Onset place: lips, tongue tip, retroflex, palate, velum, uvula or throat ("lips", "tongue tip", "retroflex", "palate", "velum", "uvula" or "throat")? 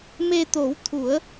lips